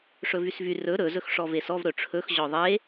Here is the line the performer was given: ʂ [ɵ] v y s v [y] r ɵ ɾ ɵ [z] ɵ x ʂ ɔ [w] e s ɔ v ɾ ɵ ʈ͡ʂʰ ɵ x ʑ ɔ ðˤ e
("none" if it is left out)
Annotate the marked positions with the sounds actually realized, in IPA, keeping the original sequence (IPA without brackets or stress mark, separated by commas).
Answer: ɵ, y, z, v